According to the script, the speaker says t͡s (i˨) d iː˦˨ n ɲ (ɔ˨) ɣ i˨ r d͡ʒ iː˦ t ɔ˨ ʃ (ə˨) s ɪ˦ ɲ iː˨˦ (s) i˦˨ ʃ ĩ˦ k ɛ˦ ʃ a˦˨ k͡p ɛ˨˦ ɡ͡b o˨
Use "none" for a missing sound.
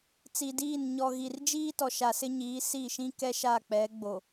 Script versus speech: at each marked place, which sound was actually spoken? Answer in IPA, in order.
i˨, ɔ˨, a˨, s

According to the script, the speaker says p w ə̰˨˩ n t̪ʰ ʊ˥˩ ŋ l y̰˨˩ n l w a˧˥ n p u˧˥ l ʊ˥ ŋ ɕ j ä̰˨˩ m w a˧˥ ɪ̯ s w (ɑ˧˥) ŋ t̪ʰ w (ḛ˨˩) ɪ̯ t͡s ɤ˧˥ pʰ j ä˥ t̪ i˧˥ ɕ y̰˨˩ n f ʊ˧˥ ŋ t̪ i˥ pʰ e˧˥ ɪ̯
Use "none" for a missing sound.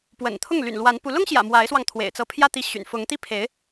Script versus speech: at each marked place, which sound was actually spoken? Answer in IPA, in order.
ɑ˧, ḛ˨˩

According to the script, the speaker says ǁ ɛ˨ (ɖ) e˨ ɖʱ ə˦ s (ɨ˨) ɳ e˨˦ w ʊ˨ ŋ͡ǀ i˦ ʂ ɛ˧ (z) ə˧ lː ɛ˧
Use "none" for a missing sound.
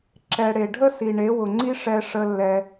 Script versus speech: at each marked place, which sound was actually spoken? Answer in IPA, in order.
ɽ, i˨, ʂ

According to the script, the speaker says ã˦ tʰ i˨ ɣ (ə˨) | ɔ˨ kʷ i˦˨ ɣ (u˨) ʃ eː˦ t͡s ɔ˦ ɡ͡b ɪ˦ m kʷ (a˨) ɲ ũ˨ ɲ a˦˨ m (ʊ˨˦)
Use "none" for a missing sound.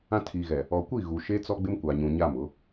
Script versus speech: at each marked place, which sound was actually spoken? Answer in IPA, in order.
ɛ˨, u˨, a˨, ʊ˨˦

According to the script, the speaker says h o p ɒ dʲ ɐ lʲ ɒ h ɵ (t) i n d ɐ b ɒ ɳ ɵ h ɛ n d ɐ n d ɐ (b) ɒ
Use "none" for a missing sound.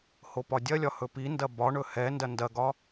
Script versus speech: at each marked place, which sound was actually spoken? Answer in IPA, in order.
p, ɡ

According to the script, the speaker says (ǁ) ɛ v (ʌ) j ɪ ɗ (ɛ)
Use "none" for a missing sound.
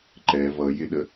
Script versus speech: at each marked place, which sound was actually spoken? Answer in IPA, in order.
ǃ, ʌ, ə

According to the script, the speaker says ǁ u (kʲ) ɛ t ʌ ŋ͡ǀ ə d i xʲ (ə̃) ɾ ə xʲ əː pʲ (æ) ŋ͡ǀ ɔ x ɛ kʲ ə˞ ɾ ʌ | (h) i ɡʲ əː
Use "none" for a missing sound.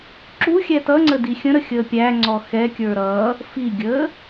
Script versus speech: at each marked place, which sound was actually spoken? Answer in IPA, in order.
xʲ, ə̃, æ, f

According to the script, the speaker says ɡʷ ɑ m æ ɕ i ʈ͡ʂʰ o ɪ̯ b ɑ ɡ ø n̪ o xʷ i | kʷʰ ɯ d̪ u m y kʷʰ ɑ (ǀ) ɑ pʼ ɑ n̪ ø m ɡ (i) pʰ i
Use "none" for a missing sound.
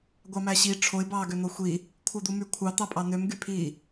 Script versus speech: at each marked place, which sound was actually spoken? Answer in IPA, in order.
t̪, y

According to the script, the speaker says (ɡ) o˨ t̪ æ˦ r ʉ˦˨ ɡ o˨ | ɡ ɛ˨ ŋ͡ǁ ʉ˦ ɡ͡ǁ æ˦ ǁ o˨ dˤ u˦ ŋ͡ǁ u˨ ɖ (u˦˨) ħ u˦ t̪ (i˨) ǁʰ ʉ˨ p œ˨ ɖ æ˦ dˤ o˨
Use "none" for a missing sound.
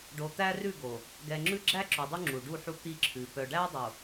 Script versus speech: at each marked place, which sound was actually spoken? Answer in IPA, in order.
ɖ, u˦˨, i˦

